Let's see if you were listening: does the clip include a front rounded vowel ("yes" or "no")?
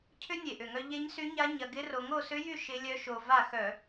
yes